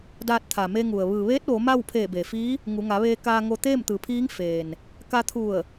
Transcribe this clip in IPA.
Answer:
d aː˧ t̚ t̪ʰ a˩ m e˧ ŋ u˩ ə̯ ʋ ɯː˩ ʋ eː˧˥ t̚ ʋ o˩˧ m a˥˨ w pʰ eː˧˩ b e˩ f iː˧˥ | ŋ u˩˧ ŋ a˩˧ ʋ eː˧ k aː˧ ŋ o˧ t̪ eː˥˨ m t̪ ɯː˩˧ pʰ iː˧˥ ŋ f eː˩ n | k a˧ t̪ʰ u˧˩ ə̯

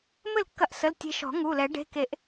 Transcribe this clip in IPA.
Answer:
m ɘ˥˩ l kː ɐ˧ ʔ s ə˩˧˩ l tʲ e̤˧ ʃ ɔ̤˨˩˦ ŋ u˩˧˩ l ɛ˨˩˦ ɖ e̤˩˧˩ k e˨˩˦ ʔ

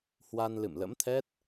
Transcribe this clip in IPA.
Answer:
h w a˧ n l ɨ̰˧˨ m l ə̰˧˥ m t̪ʰ ɛ˦˥ t̚

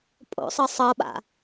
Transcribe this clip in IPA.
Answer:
pʼ o̰ sˤ ɤ sˤ ɤ ɓ a̰

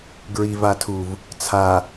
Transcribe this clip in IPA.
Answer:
ɡ ɹ i v a tʰ u v | t͡sʰ a

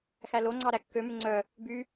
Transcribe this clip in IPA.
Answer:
x æ l o ŋ͡ǀ ɑ ɾ æ kː ø m ʉ ŋ͡ǀ œ | b y

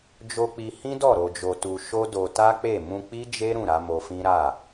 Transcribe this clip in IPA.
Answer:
d͡ʒ o˧ k͡p i˧ h ĩ˦ d ɔ˦˨ ɾ o˧ d͡ʒ o˧ t u˧ ʃ o˦ d o˧ t a˦ k͡p e˦˨ m ũ˧ k͡p i˦ d͡ʒ e˦ ɾ ũ˦˨ ɾ a˨˦ m o˧ f ĩ˦ ɾ a˦˨

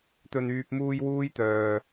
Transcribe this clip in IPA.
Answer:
t̪ ɵ˨ n yː˨ p̚ m uː˧ j w uː˥ j t̪ œː˨

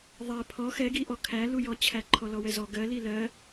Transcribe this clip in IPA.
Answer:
ðˤ ɛ pʰ ɔ x ɛ ɡ i ʔ ɔ kʰ æ l u j ɔ t͡ɕʰ æ ǃʰ ɔ l ɔ w ɛ z ɔ ɡ ɜ l i l ɜ

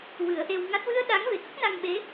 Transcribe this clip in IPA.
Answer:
w ɨ˨˩˦ ə̯ ʔ e˧ w ŋ a˦˥ t̚ w ɨ˧ ə̯ ɗ a˧˥ ŋ v e˨˩ k ə˦˥ k̚ n a˧ ŋ ɓ e˧˥

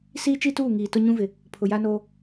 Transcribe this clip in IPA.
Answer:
s iː˦ t͡ʃ i˦ t uː˦˨ ŋ iː˨ t ʊ˦ ɲ ũ˦ v ɪ˨ | pʰ ʊ˨ j a˦ n oː˦

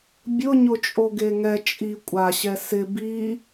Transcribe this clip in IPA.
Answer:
bʲ ʊ ɲ ʊ t͡ʃʼ o ɡ e ŋ ɛ t͡ʃʼ i kʷʼ a ɕ ɛ s ɪ b i

